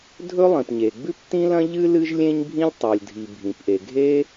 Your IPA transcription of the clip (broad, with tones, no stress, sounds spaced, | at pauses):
dʱ ɵ˥ lˠ ĩ˩ p ɲ e˩ ɡ͡b ʉ˥ p t ĩ˥ l ɐ̃˥ ʎ ɨ˥ l ɨ˥ ʒ lʲ ẽ˥ ɲ bʱ ĩ˥ lʲ tˤ o˩ lʲ dʱ i˩ bʱ ĩ˩ p ʔ e˩ ɡʱ e˥